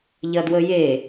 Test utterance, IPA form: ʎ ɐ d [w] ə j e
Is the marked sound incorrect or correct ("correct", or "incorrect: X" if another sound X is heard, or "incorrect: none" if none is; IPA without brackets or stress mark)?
correct